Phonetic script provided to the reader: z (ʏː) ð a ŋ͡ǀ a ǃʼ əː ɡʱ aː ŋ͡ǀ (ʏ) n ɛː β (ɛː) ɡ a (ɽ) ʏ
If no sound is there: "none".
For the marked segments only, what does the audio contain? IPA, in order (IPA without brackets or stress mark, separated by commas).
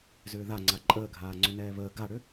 ʏː, ʏ, əː, ɽ